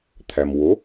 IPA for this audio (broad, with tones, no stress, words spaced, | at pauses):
t̪ʰæ˩mwo˩˥